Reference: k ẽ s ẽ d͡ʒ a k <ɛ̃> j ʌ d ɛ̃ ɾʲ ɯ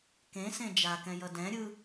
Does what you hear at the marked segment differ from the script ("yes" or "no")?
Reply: no